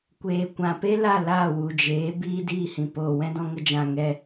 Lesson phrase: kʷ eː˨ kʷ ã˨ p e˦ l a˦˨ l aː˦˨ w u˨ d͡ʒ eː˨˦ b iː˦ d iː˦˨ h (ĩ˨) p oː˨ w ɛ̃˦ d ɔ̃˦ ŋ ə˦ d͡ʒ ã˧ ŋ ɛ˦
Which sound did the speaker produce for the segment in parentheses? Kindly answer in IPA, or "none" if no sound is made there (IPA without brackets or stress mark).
ĩ˨